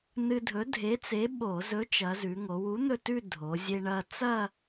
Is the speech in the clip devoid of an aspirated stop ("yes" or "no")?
yes